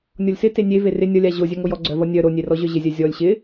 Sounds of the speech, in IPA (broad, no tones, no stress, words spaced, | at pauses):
nʲɔlʲsɪ tenʲe verɪ nʲʌlʲa ʑo zʲœŋojɔ ɡ͡ǀœvʌ nʲœ ɾonʲerɔʑœ ʑɪzʲœ zʲɔlʲ ɕɪ